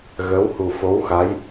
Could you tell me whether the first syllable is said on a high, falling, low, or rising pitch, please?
rising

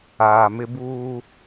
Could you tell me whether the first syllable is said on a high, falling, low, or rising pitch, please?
low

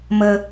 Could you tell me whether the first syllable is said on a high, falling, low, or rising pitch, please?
high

